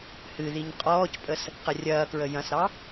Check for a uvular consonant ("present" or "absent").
present